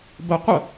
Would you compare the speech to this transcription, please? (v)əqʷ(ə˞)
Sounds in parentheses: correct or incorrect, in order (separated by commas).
incorrect, incorrect